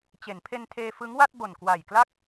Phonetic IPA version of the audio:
t͡ɕ e˩˦ n pʰ e˧ n tʰ eː˧ f ɯ˦˥ ŋ w a˥˩ t̚ b o˨˩ n k w a˨˩ j k l a˥˩ k̚

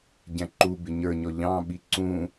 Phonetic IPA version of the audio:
ɟ æ̃ ǃ u b ɪ ɲ ə˞ ɲ ɔ ʎ ɑ̃ ɓ i ǀ ũ

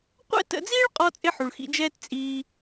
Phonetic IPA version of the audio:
qʷ ɛ̰˥ t ə̰˧ d͡z iː˥ ɭ qʼ ɔ˧ t͡sʼ ɪ˥ ħ u˩ ɭ x ḭ˧ d͡ʒ ɛː˥ t t͡sʼ iː˧

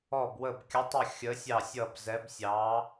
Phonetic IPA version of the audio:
ɔ˦˨ b w ə˦˨ b kʲ ə˧˥ tˤ ə˦˨ xʲ ə˧˥ sʲ ɑ˦˨ sʲ ʌ˦˨ b z ɛ˧˥ b sʲ ɑ˧˥

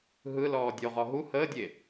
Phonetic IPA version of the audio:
ɦ ɯ l ɔː dʲ o ʁ ɔ ɦ u h əː dʲ e

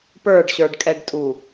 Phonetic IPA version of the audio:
p ə˞ ɖ ɕ ə˞ ɖ kʼ ɛ ɖ tʼ u

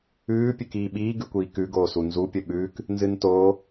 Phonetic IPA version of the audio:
ʉː pʲ ʉ k iː ɓ iː ɡ ʉ kʷ iː k ʉ ɡ oː s u n z u pʲ ɵ ɓ ʉː k | n z ɨ n t oː

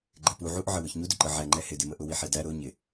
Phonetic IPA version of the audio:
ɡ͡ǃ ɛ p u ʕ u ʔ ʕ ə w ʊ ç ɲ u d ʊ ǃ ə ʕ æ ŋ͡ǃ ɛ h ɪ d ɪ m ə ʔ ʊ w i ħ ɛ d æ ɾ ʊ ɲ ɪ

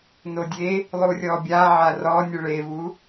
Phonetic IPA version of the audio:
n o dʲ e | lˠ u rʲ ɔ bʲ a ʕ a r ɔ nʲ ɯ ɭ e v u

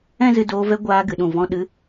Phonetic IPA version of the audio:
ɛ̃˦ z ɨ˧ d oː˧ v ɛ˧ ɡʷ aː˧ ɡ ɨ˨ ɗ ũ˨ v ɔ̃˧ ɗ ɨ˧

